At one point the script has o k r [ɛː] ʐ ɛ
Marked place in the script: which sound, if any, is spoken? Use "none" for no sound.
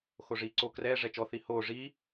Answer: ɛː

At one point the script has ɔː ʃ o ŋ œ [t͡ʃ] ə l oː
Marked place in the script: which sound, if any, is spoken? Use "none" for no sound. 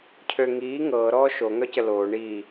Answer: c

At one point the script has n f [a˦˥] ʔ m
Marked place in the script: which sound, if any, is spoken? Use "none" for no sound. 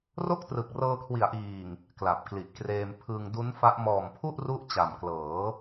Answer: a˦˥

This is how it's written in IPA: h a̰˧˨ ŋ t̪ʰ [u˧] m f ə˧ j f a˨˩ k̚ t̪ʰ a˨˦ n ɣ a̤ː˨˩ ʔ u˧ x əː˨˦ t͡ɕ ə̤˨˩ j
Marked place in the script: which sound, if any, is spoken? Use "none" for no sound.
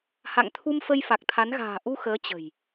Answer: u˧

